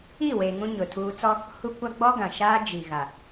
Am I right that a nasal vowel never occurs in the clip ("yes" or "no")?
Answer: no